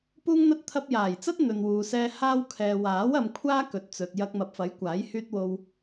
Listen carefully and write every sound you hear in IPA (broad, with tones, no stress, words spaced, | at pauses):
puː˧ŋn̪ɐ˧t̚ t̪ʰɐ˧p̚jaː˨˩jt͡sɐ˥t̚ n̪ɵ˨nwuː˨sɛː˧ haː˧wkʰɛː˨waː˨˥w ɐ˧mkʷʰaː˥ kɵ˨t̚ t͡sɵ˨t̚jɐ˧k̚ mɐ˨p̚fɐ˨˥jkʷaː˨˥j hyː˧t̚wo˧w